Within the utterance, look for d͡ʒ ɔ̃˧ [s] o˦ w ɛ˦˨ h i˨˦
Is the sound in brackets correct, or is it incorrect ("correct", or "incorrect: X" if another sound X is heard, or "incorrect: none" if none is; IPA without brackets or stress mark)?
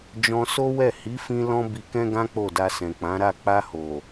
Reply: correct